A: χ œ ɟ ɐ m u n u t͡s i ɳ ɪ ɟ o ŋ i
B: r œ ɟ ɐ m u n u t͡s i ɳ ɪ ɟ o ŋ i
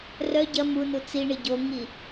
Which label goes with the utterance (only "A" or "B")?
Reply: B